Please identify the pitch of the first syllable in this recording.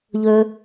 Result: high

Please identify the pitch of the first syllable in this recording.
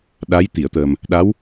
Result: rising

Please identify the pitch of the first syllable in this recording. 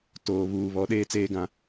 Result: low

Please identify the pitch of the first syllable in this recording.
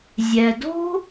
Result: low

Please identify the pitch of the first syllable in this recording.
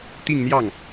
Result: falling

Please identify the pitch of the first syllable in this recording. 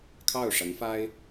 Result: falling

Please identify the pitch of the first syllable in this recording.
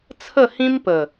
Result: falling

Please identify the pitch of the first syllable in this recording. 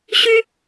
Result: high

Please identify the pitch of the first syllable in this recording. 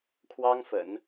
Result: high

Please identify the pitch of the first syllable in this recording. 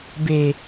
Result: low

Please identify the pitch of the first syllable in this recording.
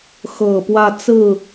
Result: low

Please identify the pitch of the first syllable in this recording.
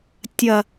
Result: low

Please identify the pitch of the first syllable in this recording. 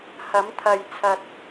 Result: rising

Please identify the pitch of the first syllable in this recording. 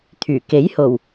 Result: low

